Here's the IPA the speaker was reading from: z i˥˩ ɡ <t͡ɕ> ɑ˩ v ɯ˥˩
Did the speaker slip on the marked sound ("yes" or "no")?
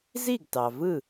yes